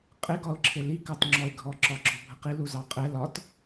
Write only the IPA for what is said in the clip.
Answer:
qʼ ɪ ɡ ɒ ʊ̯ ǁʰ ɪ l i k ɑ t ŋ͡ǁ ɔ ɪ̯ ɡʱ ɔ ǁ ɒ ɡ͡ǁ ɔ bʱ ə q i l u z ɑ qʼ ɛ l ɒ t

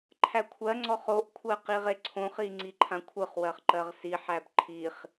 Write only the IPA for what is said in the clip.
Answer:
ǃʰ æ kʷʰ ɜ ŋ͡ǀ ɔ χ o ʔ kʷʰ ɜ q i ʁ e ǀʰ õ χ i ŋ͡ǀ i ǃʰ ã kʷʰ ɯ χ w ɜ χ ǃ ɜ ʁ s i ħ æ b ǃʰ i χ

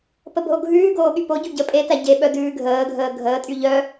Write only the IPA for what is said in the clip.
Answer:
p ə b ɦ o ɡʱ ʉː ɡ oː ɠ y p o ɟ u ɟ ə pʼ e t æ ɟ e ɓ œ d ʉː ɡʱ əː ɡʱ əː ɡʱ əː tʼ y ʎ œ

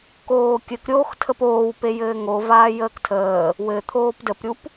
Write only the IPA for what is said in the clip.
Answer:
k oː kʲ ɘ k ɾʲ oː x tʰ ə p oː w p e j ɘː ŋ o v aː j əː k tʰ əː | w ɘ t̪ʰ oː p d ə p ɾʲ u p

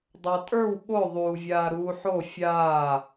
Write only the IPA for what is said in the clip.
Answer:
dˤ a tʼ ə˞ w ɓ o ðˤ uː vʲ aː ɾ uː ħ o fʲ aː

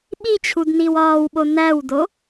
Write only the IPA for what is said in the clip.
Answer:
ɓ i t͡ɕʰ u d n i w ɒː w ɓ o n æ w d o

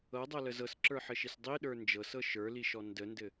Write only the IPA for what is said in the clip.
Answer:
ɤ dˤ ɤ l ə z ɤ s ǁ ə˞ ħ ɘ ʃ i s dˤ i ɗ ə˞ n d͡ʒ ɤ s ɤ ʃ ə˞ l i ʃ ɔ n d ə n d ɘ

